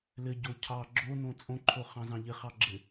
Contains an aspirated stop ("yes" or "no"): yes